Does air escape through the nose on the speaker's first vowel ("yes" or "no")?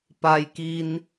no